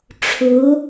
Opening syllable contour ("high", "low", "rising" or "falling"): rising